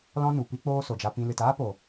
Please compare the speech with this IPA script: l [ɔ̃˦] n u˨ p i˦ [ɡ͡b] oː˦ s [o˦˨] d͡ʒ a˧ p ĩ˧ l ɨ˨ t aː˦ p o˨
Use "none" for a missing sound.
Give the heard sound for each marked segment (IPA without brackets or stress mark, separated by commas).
ɔ̃˦, k͡p, o˨